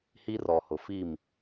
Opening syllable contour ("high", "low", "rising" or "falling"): high